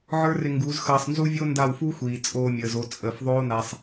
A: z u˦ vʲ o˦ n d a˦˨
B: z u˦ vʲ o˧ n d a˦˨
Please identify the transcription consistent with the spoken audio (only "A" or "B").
A